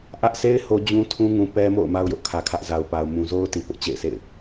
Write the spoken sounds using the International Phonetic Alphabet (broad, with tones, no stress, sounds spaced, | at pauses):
ʔ ä˦ ʔ s e˦ ɪ̯ h o˦ d͡ʑ ũ˦ tʰ ũ˦ ŋ ũ˨ p ɛ˦ m o̰˦˨ ʊ̯ m a˦ ʊ̯ j ʊ˦ ʔ kʰ ä˨ kʰ ä˦ ʔ z a˨ ʊ̯ p a˨ ʊ̯ m ũ˨ z o˦ ʊ̯ t i˨ p ʊ˦ ʔ t͡ɕ ḛ˦˨ ɪ̯ s ḛ˦˨ ɪ̯